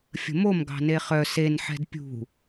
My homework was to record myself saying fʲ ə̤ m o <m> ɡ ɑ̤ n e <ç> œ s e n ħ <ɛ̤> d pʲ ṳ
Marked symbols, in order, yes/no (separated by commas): yes, no, yes